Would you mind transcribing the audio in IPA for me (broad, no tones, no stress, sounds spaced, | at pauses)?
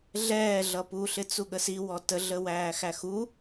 ɮ ɛː ɮ ʌ p u ɬ ɪ t͡s u ɠ ə s i w ɔ t ə ɮ ə w æː x æ x u